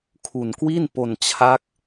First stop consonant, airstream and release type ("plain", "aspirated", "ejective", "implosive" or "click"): aspirated